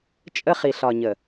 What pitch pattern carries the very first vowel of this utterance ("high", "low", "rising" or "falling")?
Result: high